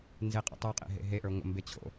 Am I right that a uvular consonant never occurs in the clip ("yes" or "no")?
no